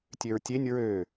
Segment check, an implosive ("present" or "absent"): absent